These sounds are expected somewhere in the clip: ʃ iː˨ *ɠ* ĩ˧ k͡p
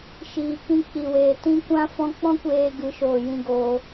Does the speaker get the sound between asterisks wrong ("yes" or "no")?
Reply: yes